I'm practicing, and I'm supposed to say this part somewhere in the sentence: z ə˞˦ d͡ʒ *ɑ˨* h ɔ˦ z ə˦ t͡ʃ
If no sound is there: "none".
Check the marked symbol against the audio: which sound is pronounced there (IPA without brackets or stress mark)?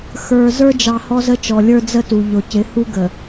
ɑ˨